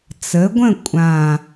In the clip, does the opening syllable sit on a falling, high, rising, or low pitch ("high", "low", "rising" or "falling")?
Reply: rising